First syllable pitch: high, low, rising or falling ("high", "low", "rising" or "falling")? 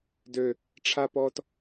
low